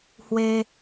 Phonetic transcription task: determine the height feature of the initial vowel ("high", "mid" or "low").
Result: mid